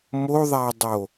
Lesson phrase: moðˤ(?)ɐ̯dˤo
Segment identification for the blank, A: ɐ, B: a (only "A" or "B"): B